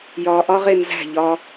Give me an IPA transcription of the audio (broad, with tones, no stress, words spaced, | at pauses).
jɒː˧ʔɒ˦ʁe˧nzæ̤˦˨ ʎɒ˧